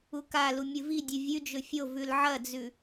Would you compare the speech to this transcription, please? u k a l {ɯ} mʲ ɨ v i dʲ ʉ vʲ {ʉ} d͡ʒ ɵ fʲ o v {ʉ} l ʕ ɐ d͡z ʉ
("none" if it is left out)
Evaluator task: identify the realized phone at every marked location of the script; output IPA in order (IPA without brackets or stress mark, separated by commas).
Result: u, ʉ, ʉ